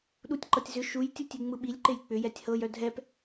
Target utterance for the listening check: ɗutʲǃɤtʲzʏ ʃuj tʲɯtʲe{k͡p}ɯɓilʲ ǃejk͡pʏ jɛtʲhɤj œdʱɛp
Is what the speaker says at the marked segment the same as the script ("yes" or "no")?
no